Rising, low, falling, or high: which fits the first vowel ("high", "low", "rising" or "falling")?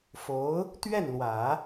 rising